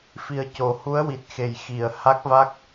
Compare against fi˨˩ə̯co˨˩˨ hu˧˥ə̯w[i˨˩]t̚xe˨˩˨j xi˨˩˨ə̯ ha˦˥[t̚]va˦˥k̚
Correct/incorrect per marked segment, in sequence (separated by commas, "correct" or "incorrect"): correct, incorrect